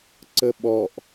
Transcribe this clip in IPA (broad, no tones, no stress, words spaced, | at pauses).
ǀəɓɔʔ